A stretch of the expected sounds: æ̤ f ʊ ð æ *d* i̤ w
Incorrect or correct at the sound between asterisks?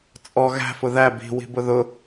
incorrect: b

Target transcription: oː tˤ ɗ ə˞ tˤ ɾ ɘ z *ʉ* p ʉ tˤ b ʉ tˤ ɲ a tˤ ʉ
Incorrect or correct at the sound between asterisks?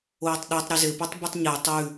incorrect: ɘ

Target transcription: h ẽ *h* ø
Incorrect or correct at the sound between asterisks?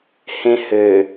correct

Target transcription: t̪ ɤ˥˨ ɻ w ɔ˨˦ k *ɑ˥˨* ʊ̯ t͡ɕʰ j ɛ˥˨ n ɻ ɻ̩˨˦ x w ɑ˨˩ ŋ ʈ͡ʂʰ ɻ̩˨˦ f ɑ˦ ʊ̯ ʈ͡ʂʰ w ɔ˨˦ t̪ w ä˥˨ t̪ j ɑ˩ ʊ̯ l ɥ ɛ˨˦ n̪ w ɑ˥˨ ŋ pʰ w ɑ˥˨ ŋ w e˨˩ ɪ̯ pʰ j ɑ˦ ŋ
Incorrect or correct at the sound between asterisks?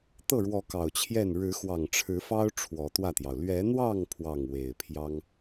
incorrect: ɑ˨˩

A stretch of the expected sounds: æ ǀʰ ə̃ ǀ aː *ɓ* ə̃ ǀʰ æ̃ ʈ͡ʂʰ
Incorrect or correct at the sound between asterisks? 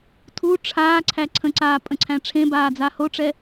incorrect: pʼ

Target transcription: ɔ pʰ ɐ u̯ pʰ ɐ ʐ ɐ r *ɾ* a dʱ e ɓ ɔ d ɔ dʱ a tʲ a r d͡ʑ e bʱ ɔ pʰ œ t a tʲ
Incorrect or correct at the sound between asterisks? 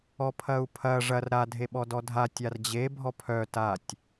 correct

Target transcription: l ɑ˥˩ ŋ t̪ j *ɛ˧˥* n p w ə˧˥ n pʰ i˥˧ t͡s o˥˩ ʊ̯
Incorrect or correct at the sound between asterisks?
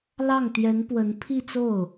correct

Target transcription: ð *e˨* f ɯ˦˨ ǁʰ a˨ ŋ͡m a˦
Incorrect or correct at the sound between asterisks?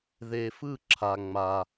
correct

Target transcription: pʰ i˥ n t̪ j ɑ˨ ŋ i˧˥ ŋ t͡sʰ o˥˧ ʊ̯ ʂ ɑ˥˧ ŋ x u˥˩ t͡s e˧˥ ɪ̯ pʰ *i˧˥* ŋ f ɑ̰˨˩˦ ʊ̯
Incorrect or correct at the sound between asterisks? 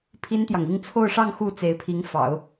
correct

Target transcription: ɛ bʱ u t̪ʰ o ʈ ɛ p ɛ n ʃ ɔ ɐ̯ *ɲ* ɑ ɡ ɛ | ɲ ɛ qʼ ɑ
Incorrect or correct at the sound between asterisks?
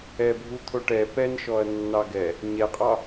incorrect: nː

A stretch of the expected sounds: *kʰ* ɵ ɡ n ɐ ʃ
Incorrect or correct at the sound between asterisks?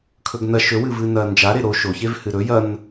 correct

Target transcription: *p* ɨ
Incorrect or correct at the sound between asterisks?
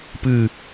correct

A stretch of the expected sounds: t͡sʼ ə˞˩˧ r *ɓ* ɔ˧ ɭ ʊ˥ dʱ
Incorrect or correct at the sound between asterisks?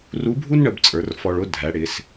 incorrect: f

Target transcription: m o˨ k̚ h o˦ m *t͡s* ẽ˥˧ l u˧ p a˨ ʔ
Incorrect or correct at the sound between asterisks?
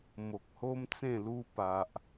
correct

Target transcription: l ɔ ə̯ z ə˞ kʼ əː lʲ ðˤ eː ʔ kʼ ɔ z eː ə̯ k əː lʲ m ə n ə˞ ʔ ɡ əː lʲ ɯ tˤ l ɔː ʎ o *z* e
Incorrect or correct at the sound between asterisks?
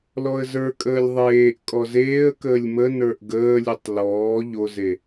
correct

